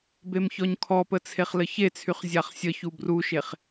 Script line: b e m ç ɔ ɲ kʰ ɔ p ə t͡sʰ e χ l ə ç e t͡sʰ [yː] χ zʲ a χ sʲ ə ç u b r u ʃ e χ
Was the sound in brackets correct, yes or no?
no